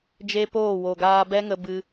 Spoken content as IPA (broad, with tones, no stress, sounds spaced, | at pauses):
d͡ʒ e˦ p oː˦˨ w o˨ ɡ aː˧ b ɛ˦ ŋ ə˧ b ɨ˧